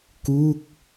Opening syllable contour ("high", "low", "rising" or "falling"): falling